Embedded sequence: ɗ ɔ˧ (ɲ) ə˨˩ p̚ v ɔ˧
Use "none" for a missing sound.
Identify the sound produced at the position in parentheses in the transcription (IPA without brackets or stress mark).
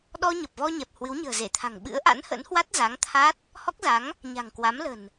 ɲ